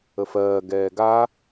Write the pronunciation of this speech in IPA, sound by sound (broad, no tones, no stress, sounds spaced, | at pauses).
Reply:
ə f ɜː ɡ ɛː ɡ a